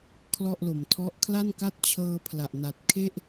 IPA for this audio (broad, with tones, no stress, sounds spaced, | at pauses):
kʰ l ɔ˥˩ ʔ l o˩˦ m tʰ ɔ˥˩ ʔ kʰ l a˥˩ n k a˥˩ t̚ t͡ɕʰ ɤː˧ pʰ l a˨˩ ʔ n a˨˩ t̚ kʰ e˥˩ ʔ